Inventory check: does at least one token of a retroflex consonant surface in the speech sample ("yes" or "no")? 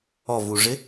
yes